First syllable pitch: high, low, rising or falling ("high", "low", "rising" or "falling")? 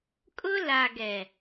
high